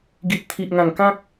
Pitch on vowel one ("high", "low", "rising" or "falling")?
low